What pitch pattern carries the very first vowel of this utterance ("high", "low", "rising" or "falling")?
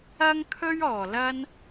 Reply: high